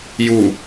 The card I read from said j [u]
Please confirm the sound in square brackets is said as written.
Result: yes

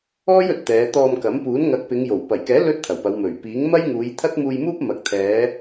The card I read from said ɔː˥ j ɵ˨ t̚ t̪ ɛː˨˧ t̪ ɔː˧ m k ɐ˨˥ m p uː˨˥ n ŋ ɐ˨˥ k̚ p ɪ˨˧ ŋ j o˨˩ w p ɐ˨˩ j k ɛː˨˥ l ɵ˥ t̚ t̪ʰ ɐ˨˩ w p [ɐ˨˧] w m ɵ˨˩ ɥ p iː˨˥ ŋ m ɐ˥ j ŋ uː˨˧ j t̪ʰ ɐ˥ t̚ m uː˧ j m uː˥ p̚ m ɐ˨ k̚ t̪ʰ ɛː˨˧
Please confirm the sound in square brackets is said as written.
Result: yes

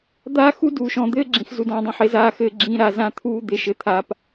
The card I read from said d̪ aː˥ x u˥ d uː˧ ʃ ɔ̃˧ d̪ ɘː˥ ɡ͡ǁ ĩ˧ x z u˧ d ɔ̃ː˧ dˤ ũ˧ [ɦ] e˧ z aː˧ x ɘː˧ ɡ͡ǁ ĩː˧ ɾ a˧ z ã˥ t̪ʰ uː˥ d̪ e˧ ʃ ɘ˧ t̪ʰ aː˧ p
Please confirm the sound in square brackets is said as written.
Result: no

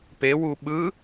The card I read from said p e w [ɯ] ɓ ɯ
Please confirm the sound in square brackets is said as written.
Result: no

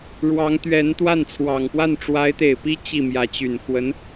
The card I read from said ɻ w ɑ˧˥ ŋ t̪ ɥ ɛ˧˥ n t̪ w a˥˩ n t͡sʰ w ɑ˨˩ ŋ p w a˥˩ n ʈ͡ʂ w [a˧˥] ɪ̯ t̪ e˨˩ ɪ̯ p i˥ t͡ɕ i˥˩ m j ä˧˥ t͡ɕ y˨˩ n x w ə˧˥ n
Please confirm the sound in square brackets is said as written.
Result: yes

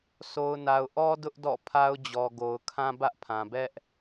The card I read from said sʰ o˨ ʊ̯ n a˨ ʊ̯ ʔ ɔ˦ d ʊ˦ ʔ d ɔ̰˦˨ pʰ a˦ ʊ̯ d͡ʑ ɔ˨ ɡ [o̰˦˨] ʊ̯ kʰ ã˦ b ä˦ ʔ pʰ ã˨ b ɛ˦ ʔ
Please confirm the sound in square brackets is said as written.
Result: no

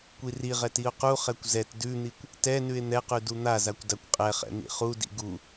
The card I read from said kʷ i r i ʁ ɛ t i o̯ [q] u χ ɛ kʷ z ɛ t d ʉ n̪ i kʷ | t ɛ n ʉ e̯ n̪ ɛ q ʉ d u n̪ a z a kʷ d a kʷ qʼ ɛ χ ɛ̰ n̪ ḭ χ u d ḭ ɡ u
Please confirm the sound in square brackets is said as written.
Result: yes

